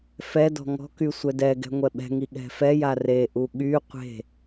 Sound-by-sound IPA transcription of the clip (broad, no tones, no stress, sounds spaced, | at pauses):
f ɛ d ɔ̤ ŋ ɔ̤ k y sʷ ɛ d ɛ ɡ ɛ̤ ŋʷ ɛ ɓ ɛ̤ ŋ i ɠ ɛ̤ f ɛ j a r e ʔ u ɠ y qʷ e̤